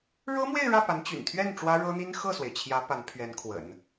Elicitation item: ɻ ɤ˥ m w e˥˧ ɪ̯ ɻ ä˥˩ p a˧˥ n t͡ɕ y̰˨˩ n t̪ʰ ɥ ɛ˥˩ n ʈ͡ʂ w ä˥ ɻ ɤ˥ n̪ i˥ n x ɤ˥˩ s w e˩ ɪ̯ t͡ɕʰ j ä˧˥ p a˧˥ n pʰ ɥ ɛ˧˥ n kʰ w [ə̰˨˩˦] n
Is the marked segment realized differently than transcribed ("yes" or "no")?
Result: no